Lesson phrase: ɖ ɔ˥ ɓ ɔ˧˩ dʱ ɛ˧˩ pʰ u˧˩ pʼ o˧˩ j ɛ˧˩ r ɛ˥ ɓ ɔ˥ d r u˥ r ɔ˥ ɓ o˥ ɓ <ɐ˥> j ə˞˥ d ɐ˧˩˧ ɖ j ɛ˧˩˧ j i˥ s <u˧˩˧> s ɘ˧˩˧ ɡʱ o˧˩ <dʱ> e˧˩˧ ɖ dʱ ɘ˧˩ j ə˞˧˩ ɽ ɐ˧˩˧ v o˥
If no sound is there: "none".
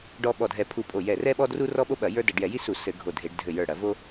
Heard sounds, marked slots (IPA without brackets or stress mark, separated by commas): ɐ˧˩˧, u˧˩˧, dʱ